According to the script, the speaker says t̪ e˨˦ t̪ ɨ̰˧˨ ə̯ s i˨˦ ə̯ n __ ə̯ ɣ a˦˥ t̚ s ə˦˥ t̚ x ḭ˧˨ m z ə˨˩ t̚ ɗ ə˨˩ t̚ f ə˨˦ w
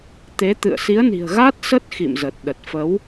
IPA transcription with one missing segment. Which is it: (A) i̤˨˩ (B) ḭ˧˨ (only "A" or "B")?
A